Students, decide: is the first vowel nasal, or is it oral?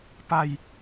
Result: oral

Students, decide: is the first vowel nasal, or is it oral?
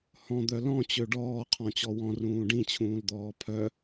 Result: nasal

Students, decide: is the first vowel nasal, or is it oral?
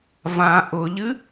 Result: nasal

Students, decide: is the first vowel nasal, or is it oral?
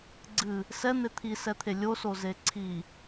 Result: oral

